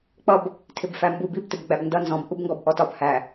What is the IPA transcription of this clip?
k͡p ʌ b | tʰ ɪ b f æ m b u b i b t ɪ b ɡ͡b æ b n d ʌ n z ɔ̃ b ʔ u b ŋ ɡ ɔ b ʔ ɔ t ɒ b h æ

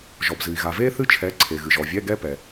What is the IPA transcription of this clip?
ʒ ɔ˩ b z ɨ˩ i̯ ɣ a˩ v eː˥ θ ɨ˥ t͡ʃʰ ɛ˨˥ ǀʰ e˩ ɣ ɨ˩ ʒ ɔ˩ vʲ ɛ˧˥˧ ɡ ɛ˥ p ɛ˩

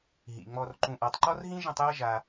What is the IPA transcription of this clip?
ɦ ḭ˩ ŋ͡m ɔ˨ r ǃ ũ˨ ʔ a˨ tˤ ǃ ɔ˥ r ɦ ĩ˥ ʒ ə̃˦ tˤ j ʌ˦ ʒ a˨

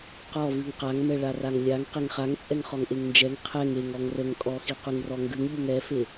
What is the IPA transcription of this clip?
q ɔ v ʉ ŋ q a ŋ m ɛ ɭ a r a ŋ lʲ a ŋ q e ŋ χ a ŋ t͡sʼ ɛ ŋ χ ɔ ŋ ʔ e ŋ n d͡ʒ ɛ ŋ qʰ ɛ ŋ e ŋ ɔ ŋ r ə ŋ kʼ ɔ x i q ʉ ŋ r ɔ ŋ ɡ ʉ ŋ ʎ ʉ ŋ ɛ f e

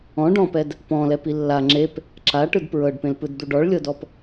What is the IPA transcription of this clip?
ɔ̃ ɖ ɔ̃ p ɛ d | p ɔ̃ l ɛ p i lː a ŋ͡ǁ e p | ǁ a ʈ ɯ d p ɹ ɤ ɖ p ẽ l p ɯ d d̪ u ɖ ɔ ɭ lʲ ɤ d ɔ p

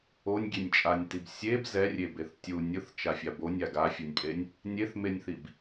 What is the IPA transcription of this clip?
o nʲ ɡʲ e nʲ t͡ʃʼ a nʲ t i b sʲ e b z ɛ rʲ e b e θ tʲ u nʲ ɯ θ t͡ʃ a fʲ a b o nʲ a ɡ a fʲ o nʲ pʼ e nʲ | nʲ e θ m e nʲ θ i b

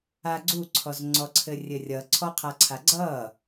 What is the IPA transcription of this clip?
a ɡ͡ǀ u ǀʰ ɔ z ŋ͡ǀ ɔ ǀʰ ɘ rʲ ɘ rʲ ʌ ǀʰ ɔ qʰ a ǀʰ a ɡ͡ǀ ʌ

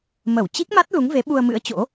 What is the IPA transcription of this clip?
m ə˧˩ w t͡ɕ i˦˥ k̚ m a˦˥ t̚ l u˨˦ ŋ v e˨˦ ɓ u˧ ə̯ m ɨ̰˧˥ ə̯ t͡ɕ o̰˧˥

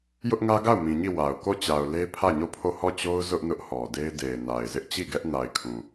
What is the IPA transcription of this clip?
j ʊ˦ ʔ ŋ ä˦ ɡ a˦˨ ʊ̯ m ĩ˨ ɲ i˦˨ w a˨ ʊ̯ k o˦˨ t͡ɕ a˨ ʊ̯ l e˦ pʰ ä˦˨ ɲ o˦˨ pʰ o˦˨ h ɔ˦˨ t͡ɕ o˦ ʊ̯ z ʊ˦ ʔ n ʊ˦ ʔ h ɔ˨ d e˦ ɪ̯ d e˨ ɪ̯ n a˨ ɪ̯ z ɪ˦ ʔ t͡ɕ i˦˨ ɡ ɛ˦ ʔ n a˨ ɪ̯ kʰ ũ˨

